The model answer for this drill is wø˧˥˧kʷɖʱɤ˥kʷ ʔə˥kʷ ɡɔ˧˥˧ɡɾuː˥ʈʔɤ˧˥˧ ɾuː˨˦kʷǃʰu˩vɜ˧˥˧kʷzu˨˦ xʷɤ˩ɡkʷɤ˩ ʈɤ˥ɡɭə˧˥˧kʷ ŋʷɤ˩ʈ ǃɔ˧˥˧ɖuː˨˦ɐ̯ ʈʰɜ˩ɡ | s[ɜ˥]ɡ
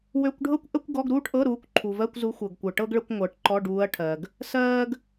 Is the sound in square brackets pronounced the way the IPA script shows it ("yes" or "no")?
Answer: no